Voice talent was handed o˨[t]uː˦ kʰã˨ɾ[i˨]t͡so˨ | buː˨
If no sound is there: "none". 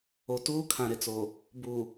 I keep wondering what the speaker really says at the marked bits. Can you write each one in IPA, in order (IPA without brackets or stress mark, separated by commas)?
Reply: t, ɪ˨